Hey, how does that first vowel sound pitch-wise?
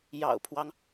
low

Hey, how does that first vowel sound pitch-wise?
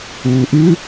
low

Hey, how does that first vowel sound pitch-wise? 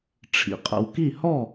low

